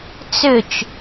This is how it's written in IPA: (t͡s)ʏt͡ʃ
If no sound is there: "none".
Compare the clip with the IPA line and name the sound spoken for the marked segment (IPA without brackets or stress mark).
t͡s